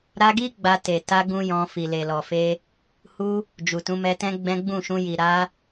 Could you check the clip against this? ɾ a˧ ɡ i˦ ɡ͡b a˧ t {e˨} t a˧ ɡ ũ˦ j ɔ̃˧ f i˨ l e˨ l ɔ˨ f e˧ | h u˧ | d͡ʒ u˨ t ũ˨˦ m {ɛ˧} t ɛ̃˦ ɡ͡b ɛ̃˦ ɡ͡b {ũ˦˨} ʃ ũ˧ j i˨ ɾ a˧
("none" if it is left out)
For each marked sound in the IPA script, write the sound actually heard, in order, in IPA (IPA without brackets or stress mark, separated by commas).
e˨, ɛ˧, ũ˦˨